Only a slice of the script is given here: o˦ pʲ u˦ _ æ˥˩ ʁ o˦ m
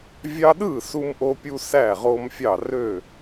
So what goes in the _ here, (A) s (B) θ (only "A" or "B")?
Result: A